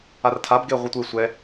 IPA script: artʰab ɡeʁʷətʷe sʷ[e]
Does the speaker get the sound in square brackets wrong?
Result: yes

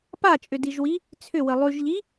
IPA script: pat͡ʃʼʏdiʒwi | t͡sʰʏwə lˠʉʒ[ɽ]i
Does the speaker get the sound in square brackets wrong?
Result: yes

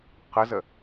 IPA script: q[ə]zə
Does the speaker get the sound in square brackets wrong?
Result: no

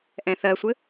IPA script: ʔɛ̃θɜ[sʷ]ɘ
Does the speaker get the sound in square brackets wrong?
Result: no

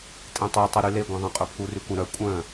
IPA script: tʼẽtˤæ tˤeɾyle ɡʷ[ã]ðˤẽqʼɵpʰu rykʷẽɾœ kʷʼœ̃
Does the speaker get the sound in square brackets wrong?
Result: yes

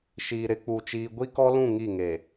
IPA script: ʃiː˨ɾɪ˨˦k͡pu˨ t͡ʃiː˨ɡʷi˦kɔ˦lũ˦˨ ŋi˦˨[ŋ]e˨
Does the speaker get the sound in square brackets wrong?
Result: no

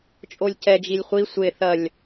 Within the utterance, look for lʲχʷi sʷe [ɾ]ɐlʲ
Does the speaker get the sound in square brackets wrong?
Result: yes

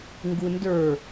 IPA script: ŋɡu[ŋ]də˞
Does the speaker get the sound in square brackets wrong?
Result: yes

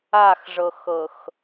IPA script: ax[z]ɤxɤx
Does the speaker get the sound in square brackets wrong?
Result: yes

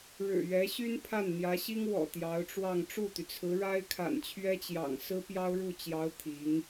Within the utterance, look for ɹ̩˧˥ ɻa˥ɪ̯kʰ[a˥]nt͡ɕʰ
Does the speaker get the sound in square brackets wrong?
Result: yes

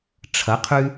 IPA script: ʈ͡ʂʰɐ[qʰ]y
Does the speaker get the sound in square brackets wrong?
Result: no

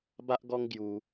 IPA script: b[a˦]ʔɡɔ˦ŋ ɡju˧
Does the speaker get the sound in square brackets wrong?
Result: no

